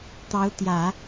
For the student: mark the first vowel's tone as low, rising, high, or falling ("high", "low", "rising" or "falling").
rising